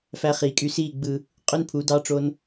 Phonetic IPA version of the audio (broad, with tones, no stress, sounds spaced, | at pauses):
f æ˧ χ iː˨ kʼ y˧ s iː˦˨ ɡ͡b ɯ˧ | qʼ ø˦ n pʰ u˨˦ d ɑ˦ ʈ͡ʂ o˦ n